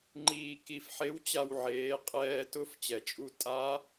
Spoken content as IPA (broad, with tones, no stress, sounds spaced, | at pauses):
ŋ͡ǃ iː˧ k i˧ f ħ e˧˥ w t͡ɕ a˧ w ʕ eː˩˧ qʼ ɛː˧ t ʊ˧˥ f t͡ɕ ɛ˩ t͡ʃʼ u˧ tʼ a˧˥